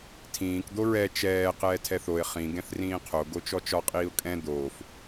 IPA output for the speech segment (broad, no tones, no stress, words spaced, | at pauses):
tʰĩːk d̪oɹɛ t͡ʃɛː qɛːtʰɛθoɪ̯ χĩ ɡɛ̃θrĩːqʰo ɡot͡ʃɔt͡ʃɒ qʼiːʊ̯kʼɛ̃ d̪oːf